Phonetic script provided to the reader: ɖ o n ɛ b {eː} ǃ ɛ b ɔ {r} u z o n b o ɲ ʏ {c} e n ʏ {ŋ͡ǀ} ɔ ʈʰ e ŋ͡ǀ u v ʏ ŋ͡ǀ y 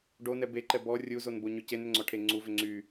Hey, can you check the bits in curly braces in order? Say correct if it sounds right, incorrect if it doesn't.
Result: incorrect: e, incorrect: rʲ, correct, correct

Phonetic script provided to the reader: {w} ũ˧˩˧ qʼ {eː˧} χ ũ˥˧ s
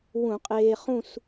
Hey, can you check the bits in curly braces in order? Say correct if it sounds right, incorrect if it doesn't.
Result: correct, correct

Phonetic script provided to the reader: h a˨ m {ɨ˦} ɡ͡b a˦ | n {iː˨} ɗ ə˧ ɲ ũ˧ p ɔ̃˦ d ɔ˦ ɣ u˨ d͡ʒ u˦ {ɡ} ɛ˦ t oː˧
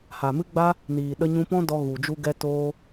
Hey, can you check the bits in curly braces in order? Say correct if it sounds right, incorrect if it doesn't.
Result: correct, correct, correct

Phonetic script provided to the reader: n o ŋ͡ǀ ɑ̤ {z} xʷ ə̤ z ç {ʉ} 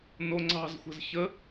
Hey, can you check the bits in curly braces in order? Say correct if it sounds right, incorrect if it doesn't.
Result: correct, incorrect: ə

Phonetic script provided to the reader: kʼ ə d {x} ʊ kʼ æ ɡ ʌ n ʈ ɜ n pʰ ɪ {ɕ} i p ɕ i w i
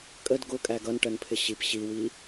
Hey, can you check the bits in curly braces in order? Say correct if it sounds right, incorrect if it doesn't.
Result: incorrect: ɡ, correct

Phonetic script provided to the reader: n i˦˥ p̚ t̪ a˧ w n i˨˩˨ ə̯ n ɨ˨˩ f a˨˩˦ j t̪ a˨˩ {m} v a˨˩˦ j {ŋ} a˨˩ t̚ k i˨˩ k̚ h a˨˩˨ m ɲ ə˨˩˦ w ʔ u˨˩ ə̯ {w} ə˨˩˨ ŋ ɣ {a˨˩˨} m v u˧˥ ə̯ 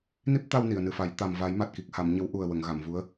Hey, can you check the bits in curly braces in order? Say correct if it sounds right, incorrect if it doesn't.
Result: correct, incorrect: m, correct, correct

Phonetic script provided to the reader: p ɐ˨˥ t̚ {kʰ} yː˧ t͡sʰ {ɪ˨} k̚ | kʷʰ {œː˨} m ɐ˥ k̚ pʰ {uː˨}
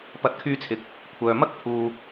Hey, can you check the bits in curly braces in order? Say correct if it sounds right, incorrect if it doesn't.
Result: correct, correct, correct, correct

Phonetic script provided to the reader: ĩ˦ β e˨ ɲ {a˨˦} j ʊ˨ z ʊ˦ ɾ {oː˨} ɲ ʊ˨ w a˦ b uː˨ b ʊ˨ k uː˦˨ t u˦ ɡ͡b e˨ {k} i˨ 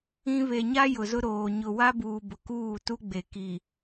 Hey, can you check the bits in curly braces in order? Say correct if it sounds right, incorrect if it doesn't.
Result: incorrect: a˦, correct, correct

